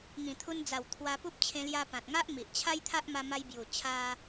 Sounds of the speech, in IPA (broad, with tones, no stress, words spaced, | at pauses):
ŋĩ˨˩t̪ʰu˧nd͡za˨˩w t̪ʰwa˧pu˦p̚ t͡ɕʰẽ˧lja˧ pã˨t̚ŋa˦ʔ mi˨ʔt͡ɕʰa˦jt̪ʰa˦ʔ ma˧ma˧jbju˨˩ t͡ɕʰa˦